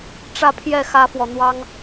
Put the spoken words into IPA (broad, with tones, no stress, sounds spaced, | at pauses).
ʈ͡ʂ ä˥˧ pʰ j ɛ˥˩ x ä˥ f w ɔ˨ n̪ w ɑ˥ ŋ